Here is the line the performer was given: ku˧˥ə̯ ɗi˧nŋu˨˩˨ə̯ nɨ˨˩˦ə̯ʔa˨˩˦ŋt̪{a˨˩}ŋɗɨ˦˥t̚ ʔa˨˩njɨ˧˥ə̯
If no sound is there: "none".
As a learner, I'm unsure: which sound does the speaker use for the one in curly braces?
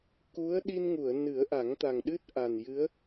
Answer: a˨˩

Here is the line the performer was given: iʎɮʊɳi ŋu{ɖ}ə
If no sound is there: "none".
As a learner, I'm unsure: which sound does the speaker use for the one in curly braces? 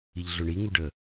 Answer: ɖ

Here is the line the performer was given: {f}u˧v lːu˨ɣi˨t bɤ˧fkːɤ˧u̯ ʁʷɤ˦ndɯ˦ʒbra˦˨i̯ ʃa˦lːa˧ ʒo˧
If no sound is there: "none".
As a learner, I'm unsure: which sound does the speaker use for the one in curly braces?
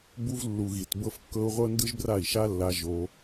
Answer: b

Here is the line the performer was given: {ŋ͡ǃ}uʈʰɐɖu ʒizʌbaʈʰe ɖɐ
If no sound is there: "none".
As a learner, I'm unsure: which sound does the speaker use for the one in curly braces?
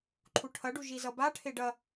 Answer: ǃʰ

